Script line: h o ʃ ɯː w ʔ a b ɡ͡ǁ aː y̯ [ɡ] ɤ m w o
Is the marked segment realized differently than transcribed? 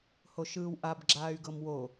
no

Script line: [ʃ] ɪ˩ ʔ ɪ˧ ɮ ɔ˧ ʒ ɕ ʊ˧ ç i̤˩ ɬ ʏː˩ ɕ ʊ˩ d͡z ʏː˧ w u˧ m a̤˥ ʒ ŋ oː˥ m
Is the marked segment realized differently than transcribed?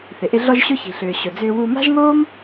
yes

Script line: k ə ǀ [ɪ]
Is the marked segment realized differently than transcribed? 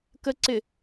no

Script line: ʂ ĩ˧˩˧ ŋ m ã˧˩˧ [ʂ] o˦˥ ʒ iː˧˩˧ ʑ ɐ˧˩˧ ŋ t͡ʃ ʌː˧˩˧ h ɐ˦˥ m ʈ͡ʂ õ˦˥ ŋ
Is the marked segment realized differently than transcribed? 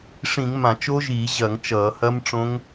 yes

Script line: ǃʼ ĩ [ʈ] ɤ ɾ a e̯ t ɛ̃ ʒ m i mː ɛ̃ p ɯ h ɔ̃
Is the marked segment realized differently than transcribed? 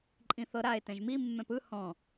yes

